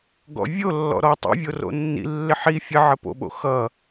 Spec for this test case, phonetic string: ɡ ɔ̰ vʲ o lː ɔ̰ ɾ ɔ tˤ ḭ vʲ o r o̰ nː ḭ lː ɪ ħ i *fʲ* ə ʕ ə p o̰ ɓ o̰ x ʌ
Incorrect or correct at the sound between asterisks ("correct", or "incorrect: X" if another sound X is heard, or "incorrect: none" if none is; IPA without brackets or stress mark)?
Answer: correct